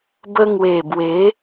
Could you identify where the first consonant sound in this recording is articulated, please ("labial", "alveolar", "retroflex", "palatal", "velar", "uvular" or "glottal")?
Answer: labial